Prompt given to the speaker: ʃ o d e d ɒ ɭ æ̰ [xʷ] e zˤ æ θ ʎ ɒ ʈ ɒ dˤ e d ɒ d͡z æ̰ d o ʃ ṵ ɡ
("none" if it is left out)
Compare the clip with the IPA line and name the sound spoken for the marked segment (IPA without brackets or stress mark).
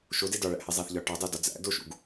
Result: h